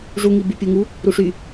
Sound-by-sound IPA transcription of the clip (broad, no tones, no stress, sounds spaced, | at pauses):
ʐ u ŋ i b y pʲ u ŋ u | ɾ u ʂ y